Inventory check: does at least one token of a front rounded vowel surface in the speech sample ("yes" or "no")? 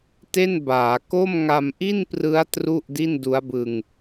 no